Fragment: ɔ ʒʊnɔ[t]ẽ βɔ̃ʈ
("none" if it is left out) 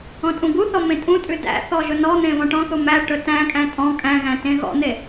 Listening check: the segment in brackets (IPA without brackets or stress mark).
n̪